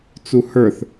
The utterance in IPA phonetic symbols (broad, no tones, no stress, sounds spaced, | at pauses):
t͡s u h ə˞ θ